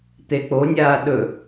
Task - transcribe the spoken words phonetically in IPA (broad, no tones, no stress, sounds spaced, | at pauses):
t̪ e k͡p o nʲ aː ɗ ɵ